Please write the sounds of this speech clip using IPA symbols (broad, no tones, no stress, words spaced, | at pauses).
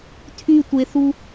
tʰytʷeθu